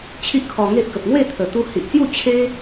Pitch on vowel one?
high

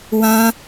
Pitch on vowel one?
high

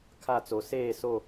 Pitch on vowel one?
falling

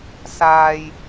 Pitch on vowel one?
low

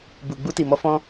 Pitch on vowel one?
low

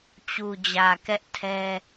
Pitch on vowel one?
low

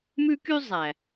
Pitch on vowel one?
high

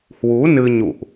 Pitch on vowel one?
rising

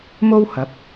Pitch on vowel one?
high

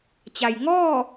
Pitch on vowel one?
low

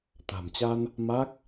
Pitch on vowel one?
low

